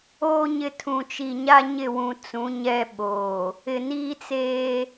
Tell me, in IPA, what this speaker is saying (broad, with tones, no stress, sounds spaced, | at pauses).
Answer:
oː˦ ɲ ɪ˨ tʰ ũ˨ t͡ʃ i˨ ɲ a˦ ɲ ɪ˦˨ w ũ˨ t͡s ũ˨˦ ɲ ɛ˦ ɓ oː˨ | ɪ˨ n iː˦ t͡s eː˦